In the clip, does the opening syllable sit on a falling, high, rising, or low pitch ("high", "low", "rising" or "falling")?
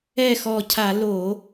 falling